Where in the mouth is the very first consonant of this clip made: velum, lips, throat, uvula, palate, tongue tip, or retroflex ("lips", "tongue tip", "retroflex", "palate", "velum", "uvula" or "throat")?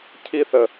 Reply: palate